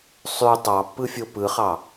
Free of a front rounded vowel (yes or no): no